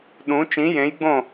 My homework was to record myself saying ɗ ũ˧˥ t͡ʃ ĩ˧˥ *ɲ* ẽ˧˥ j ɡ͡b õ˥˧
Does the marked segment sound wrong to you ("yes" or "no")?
yes